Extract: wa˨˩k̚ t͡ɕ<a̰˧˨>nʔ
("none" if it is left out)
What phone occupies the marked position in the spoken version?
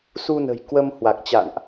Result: a̰˧˨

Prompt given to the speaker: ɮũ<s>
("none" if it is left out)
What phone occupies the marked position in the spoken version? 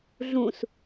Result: s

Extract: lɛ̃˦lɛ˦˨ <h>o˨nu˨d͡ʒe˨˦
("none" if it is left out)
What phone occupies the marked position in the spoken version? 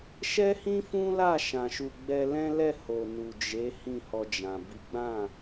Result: h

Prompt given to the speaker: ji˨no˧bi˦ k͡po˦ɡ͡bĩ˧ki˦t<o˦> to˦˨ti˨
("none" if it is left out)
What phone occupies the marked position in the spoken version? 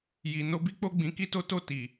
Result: o˦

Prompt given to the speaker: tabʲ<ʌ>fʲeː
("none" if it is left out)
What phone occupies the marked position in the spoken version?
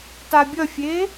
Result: ʌ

